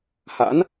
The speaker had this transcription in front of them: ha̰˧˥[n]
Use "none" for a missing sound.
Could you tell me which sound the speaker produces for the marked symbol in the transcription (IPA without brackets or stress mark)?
n